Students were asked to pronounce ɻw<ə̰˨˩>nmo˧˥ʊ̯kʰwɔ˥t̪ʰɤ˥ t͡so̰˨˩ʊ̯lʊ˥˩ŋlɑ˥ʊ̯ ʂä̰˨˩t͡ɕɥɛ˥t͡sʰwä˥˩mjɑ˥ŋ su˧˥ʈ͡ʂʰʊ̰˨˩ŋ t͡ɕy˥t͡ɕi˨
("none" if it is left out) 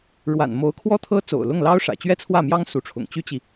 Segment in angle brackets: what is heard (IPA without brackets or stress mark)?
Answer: a̰˨˩